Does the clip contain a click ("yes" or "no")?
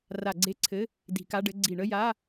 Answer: yes